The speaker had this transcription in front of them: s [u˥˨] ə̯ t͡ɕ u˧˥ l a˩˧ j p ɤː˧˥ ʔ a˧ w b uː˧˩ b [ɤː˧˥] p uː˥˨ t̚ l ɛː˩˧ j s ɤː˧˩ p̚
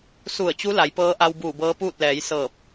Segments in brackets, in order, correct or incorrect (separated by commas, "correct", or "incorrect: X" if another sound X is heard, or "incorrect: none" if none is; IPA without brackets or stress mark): incorrect: u˧˩, correct